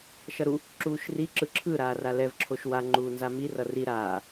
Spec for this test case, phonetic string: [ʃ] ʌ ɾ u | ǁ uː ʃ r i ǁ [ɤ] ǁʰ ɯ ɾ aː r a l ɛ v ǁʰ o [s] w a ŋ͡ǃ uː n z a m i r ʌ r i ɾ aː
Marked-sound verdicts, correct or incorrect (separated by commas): correct, incorrect, incorrect